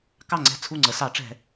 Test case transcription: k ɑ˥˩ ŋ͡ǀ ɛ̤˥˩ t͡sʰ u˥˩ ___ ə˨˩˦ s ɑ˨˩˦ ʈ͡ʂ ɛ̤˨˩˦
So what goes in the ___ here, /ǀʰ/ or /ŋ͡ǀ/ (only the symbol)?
ŋ͡ǀ